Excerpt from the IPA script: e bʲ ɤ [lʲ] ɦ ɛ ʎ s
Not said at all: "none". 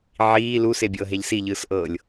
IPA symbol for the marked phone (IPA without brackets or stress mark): none